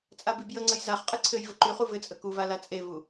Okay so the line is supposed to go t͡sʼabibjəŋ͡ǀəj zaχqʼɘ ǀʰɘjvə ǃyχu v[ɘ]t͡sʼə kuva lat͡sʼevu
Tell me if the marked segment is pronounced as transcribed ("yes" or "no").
yes